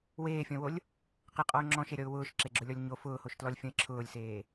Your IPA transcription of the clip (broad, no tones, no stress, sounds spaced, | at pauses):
w eː fʲ ɔ̃ w o lʲ | q ɪ qʼ ɔ ʊ̯ ŋ͡ǁ ɔ̃ ʃ e ɾʲ ɔ ʊ̯ w ʊː ʃ ǁ e ɡ͡ǁ ʊ lʲ ɔ lʲ ɲ o f ʊː h o ʃ t l ɔ lʲ fʲ ɔ̃ ɪ̯ ǁʰ ʊː lʲ s eː